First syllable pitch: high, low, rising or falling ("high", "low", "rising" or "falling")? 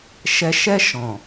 low